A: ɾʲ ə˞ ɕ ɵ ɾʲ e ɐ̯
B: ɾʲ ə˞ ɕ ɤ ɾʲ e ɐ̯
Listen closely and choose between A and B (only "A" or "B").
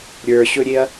A